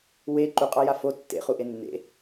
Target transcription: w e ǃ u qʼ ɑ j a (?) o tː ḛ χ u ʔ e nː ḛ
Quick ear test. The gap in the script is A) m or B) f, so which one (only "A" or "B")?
B